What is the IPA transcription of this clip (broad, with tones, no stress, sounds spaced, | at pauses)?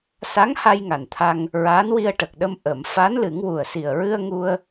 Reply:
s a˧˥ ŋ h a˧ j ŋ a˨˩ n t̪ʰ a˧ ŋ | ɹ aː˧˥ n w i˧ ə̯ ʈ ə˨˩ k̚ ɗ ə˧ m ʔ ə˨˩˨ m f a˧˥ n l ɨ˨˩˦ ŋ w u˨˩ ə̯ s i˨˩ ə̯ ɹ ɨ˧ ə̯ ŋ u˧ ə̯